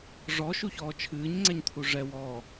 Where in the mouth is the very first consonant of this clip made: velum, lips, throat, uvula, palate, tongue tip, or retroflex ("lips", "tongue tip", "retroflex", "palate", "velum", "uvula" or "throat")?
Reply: retroflex